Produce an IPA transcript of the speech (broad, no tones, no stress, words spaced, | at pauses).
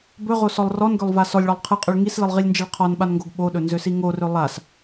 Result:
bɵʁosɔlˠ rɔnɡølˠva sɔlʲɭɔlˠ qʰɨqʼøɭ ŋislɨlˠʁilʲnd͡ʒiɭ qʰɔnɓanŋɡoɡ ɓoɗɵnzøsi ŋorø lˠas